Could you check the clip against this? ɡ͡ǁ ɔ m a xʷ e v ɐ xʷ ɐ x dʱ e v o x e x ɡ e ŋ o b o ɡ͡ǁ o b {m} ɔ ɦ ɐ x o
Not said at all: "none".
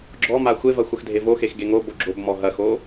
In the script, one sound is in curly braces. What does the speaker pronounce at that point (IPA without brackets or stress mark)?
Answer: m